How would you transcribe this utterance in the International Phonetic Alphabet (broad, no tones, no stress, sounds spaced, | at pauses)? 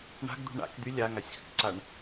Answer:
ɳ a̤ ɡ d̪ ṳ ɳ a̰ k d̪ y lʲ a ŋ a sʲ x ʏ k ǀ a ɳ